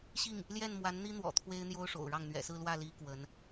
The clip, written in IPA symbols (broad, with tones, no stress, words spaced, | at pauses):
ɕi˥˩ŋ | ljɛ˥˩nmwa˧˥nn̪i˥n̪wɔ̰˨˩ t̪ʰwe˥ɪ̯n̪jo˥ʊ̯ʂo̰˨˩ʊ̯ɻɑ˥˩ŋ n̪ɥɛ̰˨˩sɹ̩˥˧lwä˥˩ li˧˥ kwə˧˥n